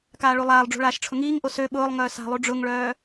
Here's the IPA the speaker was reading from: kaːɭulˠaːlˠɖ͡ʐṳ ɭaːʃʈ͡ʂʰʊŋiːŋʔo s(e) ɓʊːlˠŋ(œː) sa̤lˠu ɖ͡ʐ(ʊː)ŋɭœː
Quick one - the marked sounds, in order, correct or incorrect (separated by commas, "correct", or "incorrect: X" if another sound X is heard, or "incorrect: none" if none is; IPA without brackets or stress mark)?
incorrect: ø, correct, incorrect: ʊ